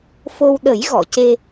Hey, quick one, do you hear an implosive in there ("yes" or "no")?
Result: yes